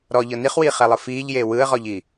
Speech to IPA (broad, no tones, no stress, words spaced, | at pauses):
ɾɔʎɤ niχwiːχɛlˠɯ fiːʎjeː wɯə̯ʁɔʎi